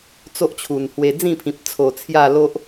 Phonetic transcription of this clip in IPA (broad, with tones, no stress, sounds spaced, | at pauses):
t͡s o˦ ʔ t͡ɕʰ u˨˩ n h w e˧ d͡z ĩ˥˧ pʰ ĩ˨ p̚ t͡sʰ o˨˩ t͡sʰ j a˥˧ l o˦ ʔ